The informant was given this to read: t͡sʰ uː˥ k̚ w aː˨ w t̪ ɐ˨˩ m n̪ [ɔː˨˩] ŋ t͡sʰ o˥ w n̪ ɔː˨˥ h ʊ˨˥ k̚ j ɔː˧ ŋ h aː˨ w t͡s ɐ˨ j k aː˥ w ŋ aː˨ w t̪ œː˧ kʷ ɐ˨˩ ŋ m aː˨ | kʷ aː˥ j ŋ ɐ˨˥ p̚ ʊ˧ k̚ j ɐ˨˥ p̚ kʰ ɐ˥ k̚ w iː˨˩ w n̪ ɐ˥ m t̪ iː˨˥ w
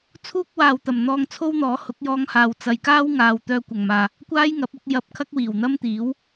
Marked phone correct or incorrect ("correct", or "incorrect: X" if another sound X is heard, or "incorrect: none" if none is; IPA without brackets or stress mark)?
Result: incorrect: ɔː˧